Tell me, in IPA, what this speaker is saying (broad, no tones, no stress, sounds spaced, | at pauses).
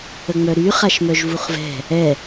ə ŋ͡m œ ɾ y χ a ʃ m œ ʒ v u χ v ɛ̤ | ɛ